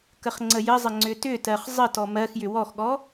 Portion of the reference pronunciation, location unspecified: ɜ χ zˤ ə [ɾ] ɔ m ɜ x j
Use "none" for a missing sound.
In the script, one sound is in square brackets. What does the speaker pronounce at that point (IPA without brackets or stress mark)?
t